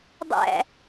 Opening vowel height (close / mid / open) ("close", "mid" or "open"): open